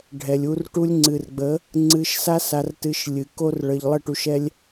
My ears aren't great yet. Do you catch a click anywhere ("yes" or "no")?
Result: yes